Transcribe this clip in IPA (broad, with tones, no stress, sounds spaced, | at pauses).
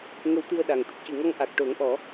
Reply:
ŋ ə˧ w t̪ ɨ˧ ə̯ ɗ a˨˩ ŋ t̪ ə˦˥ k̚ c ɨ˨˩˨ ŋ ɔ˧ ŋ ʔ a˨˩ k̚ ʈ o˨˩˦ ŋ ʔ ɔ˨˩˦